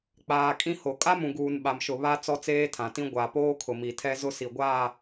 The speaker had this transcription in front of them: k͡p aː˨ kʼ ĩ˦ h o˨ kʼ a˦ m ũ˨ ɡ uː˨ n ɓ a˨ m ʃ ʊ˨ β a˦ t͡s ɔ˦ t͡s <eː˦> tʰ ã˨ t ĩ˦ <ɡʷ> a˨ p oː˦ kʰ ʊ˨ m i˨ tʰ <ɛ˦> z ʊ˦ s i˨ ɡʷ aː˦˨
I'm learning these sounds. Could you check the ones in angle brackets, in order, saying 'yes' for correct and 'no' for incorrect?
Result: yes, yes, yes

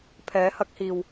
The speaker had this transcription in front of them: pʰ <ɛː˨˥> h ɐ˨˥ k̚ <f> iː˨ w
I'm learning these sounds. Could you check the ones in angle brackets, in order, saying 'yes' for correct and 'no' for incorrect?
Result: yes, no

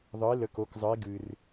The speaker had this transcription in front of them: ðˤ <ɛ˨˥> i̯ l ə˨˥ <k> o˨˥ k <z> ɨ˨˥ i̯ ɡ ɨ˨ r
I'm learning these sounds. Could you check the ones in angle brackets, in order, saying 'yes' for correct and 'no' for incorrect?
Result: no, yes, no

